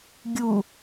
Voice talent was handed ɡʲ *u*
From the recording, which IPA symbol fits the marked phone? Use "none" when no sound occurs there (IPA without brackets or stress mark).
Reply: u